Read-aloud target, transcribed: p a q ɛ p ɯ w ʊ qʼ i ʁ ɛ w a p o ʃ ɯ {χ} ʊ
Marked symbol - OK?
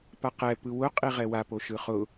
yes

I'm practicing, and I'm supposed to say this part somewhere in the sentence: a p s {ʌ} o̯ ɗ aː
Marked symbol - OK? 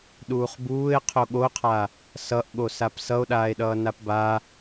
yes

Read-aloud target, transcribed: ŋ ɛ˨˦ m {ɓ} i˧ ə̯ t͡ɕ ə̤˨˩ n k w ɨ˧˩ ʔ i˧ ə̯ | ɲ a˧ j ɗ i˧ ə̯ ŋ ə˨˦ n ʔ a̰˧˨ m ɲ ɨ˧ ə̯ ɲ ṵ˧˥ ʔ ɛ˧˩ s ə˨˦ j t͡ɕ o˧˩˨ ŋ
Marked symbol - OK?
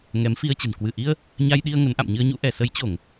no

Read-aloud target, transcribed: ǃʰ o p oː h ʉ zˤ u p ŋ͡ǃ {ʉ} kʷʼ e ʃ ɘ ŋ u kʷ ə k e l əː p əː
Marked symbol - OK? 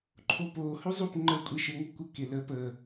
no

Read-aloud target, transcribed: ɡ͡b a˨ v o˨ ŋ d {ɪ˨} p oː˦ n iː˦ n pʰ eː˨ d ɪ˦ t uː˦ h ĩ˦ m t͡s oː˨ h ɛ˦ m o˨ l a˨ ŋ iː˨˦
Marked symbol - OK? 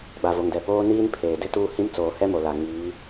no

